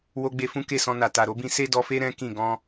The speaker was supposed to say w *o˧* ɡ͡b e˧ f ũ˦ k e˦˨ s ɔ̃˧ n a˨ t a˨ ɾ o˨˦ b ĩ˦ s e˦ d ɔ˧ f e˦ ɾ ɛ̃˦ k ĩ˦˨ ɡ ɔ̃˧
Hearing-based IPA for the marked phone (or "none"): o˧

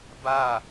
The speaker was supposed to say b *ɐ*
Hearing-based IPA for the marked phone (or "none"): a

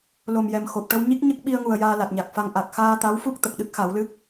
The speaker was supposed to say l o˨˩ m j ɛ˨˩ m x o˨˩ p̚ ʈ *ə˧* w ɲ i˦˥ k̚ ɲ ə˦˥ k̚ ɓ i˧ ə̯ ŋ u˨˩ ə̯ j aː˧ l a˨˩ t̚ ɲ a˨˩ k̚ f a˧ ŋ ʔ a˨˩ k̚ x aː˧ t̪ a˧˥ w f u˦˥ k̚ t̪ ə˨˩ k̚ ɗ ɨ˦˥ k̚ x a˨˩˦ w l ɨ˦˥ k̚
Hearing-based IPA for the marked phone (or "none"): ə˧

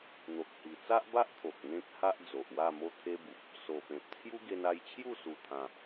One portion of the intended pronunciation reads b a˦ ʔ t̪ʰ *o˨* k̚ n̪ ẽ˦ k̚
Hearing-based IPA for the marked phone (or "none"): o˨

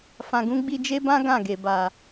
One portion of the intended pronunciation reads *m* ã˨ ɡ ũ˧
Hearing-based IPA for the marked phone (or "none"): f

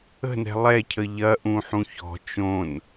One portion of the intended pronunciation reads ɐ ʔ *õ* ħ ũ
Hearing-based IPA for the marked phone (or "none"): ũ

